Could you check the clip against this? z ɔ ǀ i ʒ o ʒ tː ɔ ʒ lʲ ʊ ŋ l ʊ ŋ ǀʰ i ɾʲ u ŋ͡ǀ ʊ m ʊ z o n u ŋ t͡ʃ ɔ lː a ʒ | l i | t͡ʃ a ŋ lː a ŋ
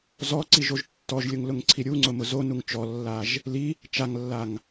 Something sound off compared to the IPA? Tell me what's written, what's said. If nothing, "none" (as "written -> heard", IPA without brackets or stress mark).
none